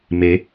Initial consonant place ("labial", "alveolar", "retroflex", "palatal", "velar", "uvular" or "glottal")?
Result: labial